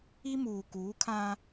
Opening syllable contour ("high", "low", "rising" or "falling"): high